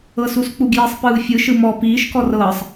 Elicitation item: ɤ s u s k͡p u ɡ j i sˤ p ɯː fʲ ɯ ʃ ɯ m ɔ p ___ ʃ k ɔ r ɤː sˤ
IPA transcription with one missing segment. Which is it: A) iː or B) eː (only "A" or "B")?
A